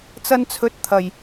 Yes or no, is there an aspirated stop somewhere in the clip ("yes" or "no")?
yes